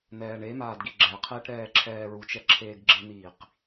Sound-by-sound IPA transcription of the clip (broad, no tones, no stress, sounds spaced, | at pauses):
n̪ ɛː ɳ e m aː d ɡ i ɡ͡ǁ ɛ qʰ eː ʈ ɾ ɛː ǁʰ ɛː ɹ u t͡ʃ ɛ ǁʰ eː ɡ ɡ͡ǁ ɪ n̪ iː q